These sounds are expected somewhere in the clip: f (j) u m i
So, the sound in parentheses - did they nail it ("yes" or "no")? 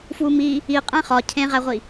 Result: no